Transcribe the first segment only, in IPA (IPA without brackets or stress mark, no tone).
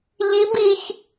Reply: ʎ